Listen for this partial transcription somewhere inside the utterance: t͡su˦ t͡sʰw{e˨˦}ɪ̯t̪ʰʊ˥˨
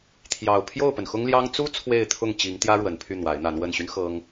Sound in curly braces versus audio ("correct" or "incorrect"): incorrect